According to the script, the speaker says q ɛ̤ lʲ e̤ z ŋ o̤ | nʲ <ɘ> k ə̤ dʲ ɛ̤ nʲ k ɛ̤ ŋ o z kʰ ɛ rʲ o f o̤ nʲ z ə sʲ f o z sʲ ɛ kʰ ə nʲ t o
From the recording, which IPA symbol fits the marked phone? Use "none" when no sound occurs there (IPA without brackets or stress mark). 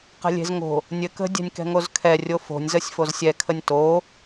ɘ